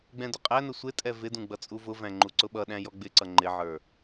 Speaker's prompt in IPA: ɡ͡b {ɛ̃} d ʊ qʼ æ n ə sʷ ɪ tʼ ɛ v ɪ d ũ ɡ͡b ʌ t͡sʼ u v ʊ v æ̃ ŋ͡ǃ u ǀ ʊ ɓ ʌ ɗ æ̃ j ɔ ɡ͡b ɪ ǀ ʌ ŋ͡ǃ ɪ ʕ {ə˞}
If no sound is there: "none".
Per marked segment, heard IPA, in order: ɛ̃, ə˞

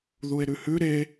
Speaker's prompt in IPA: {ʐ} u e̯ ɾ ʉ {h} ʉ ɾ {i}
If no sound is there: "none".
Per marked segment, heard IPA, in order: ð, h, e

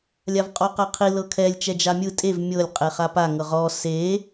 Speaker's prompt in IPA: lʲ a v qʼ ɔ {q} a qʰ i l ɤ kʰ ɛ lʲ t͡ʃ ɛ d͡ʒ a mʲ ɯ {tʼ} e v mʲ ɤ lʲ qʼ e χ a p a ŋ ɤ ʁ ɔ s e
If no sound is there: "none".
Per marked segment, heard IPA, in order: q, tʼ

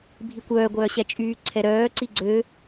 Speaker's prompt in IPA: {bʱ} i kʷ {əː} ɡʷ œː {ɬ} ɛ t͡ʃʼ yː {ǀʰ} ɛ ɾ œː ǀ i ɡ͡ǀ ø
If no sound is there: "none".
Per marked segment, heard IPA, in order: bʱ, œː, ɕ, ǀʰ

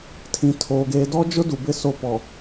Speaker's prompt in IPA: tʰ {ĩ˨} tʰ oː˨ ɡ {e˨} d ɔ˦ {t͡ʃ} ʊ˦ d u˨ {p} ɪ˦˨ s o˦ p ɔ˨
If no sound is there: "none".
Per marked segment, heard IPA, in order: ĩ˨, eː˨, d͡ʒ, b

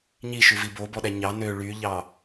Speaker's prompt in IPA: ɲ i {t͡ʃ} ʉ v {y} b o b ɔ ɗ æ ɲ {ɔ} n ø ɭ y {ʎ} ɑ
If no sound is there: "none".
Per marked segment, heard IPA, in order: ʃ, i, ɑ, ʎ

